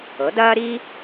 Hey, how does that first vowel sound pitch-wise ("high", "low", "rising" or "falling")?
rising